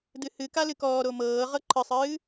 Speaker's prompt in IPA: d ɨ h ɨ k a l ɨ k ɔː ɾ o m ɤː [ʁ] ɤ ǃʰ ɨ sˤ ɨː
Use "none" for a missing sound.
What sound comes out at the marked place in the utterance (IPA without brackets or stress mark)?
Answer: ʁ